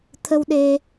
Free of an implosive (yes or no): no